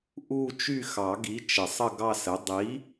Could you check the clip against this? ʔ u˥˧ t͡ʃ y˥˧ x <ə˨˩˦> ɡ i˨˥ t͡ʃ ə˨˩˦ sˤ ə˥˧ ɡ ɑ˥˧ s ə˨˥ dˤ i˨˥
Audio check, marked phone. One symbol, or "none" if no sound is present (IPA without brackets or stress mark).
ɑ˨˩˦